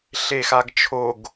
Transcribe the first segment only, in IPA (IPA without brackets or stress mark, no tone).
ɬ